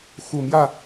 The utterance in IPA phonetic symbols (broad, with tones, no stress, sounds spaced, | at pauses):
x u˨˩ m j ä˥˨